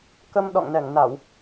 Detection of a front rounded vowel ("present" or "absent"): absent